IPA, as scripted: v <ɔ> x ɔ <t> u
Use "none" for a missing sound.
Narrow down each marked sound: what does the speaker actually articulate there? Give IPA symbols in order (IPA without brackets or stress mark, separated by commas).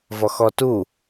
ɔ, t